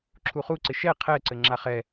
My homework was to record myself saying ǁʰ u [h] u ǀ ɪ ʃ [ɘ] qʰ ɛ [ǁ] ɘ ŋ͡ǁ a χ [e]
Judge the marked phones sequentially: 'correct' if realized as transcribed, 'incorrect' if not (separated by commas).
incorrect, incorrect, incorrect, incorrect